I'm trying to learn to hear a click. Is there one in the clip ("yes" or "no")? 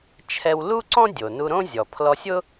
yes